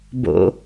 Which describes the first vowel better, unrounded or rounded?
rounded